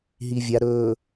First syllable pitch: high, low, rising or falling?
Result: low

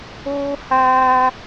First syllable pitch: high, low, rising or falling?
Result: high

